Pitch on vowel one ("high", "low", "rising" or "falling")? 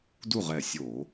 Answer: falling